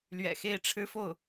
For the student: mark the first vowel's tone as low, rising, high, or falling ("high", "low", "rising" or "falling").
low